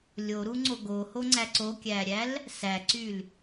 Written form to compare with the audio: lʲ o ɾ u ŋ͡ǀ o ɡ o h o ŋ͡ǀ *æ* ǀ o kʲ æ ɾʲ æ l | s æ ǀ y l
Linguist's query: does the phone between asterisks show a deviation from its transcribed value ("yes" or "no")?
no